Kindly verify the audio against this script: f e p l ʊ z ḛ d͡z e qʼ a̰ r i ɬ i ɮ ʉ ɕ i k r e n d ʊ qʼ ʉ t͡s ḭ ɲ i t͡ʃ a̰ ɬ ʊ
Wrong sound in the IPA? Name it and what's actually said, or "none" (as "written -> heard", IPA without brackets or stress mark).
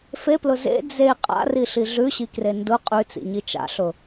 none